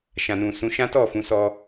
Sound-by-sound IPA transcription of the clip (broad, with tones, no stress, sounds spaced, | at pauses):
ʃ ã˨ n ũ˨ s ũ˨˦ ʃ ã˦ t ɔ˦˨ f ũ˨˦ s ɔ˧